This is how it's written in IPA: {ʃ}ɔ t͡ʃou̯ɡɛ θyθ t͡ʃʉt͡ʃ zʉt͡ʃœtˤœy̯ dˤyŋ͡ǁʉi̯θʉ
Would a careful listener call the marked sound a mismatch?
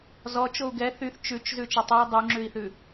yes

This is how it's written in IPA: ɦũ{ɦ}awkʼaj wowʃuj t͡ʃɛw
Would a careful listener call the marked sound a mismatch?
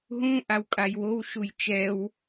yes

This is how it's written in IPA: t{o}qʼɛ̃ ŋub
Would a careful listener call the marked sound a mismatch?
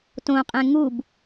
yes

